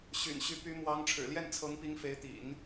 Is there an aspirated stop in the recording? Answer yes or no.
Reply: yes